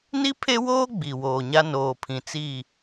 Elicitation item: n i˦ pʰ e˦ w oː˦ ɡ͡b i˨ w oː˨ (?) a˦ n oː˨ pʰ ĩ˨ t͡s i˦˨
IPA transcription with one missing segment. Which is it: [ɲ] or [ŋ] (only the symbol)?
ɲ